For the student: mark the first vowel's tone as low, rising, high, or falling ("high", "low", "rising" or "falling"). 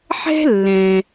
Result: high